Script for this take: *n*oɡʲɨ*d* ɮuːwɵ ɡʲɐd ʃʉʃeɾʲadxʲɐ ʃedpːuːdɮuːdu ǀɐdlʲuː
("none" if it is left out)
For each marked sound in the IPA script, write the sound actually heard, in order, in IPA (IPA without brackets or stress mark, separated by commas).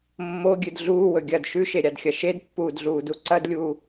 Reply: mː, d